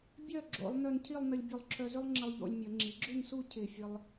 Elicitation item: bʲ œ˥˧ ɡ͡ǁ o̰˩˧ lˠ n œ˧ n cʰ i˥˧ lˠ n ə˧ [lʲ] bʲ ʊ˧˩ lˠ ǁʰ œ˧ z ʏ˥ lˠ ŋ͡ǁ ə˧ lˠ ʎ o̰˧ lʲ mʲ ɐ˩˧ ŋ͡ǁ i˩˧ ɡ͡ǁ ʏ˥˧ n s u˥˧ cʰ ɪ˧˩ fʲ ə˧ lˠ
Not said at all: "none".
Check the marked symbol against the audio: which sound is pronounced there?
lʲ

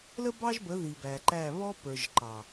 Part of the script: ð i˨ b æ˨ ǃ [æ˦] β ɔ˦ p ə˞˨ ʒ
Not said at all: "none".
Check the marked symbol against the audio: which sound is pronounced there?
æ˦˨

